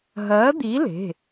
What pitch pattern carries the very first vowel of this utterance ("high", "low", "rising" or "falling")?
rising